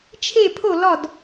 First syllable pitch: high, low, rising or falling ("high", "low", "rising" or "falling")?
falling